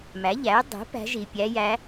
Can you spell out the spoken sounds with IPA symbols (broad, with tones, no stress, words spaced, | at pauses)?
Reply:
mæ˩˥ ʎæ˩˥y̯ dˤi̤˩˥ pæ̤˧˥ʒi˨ pʲæ˧˥jæ˧˥